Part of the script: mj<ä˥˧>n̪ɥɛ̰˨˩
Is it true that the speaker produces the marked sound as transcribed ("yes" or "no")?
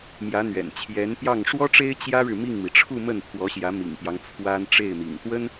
no